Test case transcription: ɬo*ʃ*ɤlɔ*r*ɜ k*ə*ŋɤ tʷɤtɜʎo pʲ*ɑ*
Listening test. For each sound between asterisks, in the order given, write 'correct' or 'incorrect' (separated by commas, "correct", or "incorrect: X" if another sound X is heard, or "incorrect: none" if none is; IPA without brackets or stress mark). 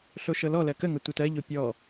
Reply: correct, incorrect: l, correct, incorrect: ɔ